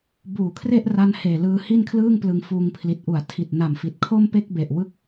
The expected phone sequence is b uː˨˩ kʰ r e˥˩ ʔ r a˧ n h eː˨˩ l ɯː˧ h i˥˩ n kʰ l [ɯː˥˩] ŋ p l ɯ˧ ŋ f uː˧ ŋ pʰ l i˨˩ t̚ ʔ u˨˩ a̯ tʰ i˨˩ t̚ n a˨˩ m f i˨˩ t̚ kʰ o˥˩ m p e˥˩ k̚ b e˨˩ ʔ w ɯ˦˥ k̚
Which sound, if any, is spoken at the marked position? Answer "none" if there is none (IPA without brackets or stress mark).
ɯː˥˩